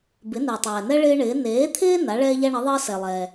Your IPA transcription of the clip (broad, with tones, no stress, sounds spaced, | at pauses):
b ɪ˩˥ n ɪː˩ tˤ ɛː˩ n ɛ˦ ɭ ɪː˦ ɳ ɪː˩˥ n eː˩˥ t̪ʰ ɪː˦ n a˩˥ ɭ ɛː˦ ʎ a˦ ɳ ə˩˥ ðˤ əː˦ s ɛ˩ lˠ ɛː˩